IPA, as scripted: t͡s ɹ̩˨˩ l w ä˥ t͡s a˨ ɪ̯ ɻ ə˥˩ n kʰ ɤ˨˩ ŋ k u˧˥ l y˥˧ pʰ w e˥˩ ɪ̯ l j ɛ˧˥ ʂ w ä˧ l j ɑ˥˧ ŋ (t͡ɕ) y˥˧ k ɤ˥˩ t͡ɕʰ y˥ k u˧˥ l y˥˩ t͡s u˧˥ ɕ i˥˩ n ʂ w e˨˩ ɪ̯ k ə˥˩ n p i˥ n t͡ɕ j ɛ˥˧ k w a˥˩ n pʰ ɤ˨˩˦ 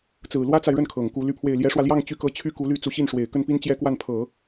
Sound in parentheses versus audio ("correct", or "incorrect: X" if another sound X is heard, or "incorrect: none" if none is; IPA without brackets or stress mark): correct